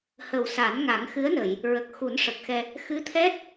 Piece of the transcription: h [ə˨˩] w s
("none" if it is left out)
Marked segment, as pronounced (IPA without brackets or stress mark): ə˨˩